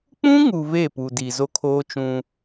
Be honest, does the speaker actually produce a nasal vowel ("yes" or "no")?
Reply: yes